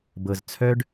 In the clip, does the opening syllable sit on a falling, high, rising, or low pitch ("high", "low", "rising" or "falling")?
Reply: low